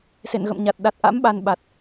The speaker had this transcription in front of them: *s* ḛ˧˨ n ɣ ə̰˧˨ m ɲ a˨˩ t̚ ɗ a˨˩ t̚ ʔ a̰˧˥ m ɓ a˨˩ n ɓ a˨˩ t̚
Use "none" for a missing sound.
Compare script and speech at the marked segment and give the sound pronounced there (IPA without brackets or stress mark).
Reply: s